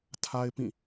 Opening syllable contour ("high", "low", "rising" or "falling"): high